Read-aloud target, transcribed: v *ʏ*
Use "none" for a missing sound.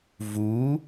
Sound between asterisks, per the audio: u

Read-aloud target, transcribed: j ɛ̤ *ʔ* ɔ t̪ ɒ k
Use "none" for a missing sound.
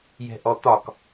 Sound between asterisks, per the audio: ʔ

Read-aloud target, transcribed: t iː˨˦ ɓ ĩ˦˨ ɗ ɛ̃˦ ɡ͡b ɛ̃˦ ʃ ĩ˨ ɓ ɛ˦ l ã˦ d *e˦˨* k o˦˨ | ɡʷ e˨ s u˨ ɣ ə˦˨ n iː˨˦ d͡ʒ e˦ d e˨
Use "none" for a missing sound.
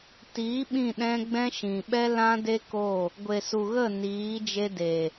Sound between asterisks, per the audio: e˦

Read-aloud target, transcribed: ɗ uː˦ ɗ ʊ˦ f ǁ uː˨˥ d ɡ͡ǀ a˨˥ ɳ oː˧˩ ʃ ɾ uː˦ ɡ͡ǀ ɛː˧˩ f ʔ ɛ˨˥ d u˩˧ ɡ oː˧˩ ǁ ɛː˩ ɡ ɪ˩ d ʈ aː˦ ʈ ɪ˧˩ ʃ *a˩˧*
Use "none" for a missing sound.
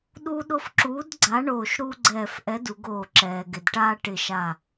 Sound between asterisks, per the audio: a˧˩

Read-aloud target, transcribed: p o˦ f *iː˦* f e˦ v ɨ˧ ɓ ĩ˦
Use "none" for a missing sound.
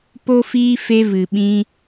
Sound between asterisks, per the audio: iː˦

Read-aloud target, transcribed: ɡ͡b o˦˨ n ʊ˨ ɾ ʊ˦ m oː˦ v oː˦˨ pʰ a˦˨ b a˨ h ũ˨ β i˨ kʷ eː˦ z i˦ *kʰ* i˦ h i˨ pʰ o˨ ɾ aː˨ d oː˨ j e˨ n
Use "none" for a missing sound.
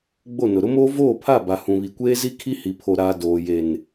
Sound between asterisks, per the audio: kʰ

